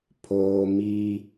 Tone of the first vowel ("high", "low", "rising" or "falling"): high